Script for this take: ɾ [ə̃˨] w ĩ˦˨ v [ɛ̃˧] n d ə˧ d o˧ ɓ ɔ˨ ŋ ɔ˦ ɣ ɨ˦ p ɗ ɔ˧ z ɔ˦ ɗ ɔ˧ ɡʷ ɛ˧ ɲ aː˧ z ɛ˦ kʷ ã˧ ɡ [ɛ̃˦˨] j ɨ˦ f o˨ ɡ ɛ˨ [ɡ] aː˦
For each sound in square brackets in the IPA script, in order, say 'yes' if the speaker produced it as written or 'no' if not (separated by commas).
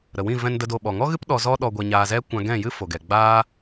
no, yes, yes, no